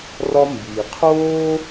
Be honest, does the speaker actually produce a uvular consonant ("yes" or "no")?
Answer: yes